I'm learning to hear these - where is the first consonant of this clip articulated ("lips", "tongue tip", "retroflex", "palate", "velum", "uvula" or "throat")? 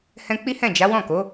throat